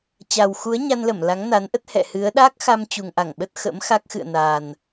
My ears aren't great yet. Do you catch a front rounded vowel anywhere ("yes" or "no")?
no